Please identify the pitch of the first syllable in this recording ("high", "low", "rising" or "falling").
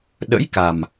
rising